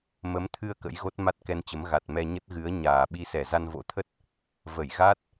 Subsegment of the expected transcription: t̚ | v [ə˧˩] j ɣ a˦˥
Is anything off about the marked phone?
no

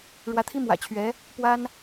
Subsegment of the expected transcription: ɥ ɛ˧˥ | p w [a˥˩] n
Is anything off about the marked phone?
yes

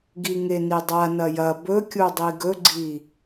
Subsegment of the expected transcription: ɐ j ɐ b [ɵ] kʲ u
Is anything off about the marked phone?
no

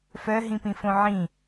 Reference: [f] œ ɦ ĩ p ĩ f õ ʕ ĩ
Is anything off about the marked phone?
no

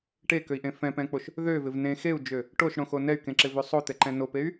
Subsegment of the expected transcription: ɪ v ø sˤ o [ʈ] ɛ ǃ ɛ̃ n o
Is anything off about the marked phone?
yes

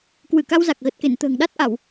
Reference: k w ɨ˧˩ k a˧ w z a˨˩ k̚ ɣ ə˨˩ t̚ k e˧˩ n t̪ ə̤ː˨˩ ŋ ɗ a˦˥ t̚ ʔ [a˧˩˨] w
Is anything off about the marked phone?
no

